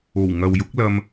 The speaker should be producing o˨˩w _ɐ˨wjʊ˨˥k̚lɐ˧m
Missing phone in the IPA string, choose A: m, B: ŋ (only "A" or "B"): B